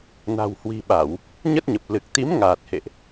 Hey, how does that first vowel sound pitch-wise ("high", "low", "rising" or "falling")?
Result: low